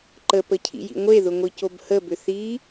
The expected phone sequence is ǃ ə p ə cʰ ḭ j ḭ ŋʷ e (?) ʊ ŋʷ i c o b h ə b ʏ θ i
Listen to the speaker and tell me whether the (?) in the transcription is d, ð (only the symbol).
ð